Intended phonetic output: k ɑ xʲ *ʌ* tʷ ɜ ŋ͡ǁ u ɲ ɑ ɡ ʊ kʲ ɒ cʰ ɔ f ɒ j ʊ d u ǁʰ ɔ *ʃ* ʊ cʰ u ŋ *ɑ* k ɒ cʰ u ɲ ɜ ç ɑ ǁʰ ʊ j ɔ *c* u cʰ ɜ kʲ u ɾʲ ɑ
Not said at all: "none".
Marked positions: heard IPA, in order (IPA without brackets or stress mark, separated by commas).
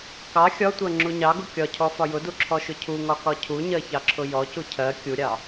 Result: ɒ, ʃ, ɒ, c